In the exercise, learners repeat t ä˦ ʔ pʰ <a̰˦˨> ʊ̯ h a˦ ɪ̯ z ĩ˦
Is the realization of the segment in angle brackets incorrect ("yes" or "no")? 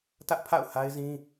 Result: no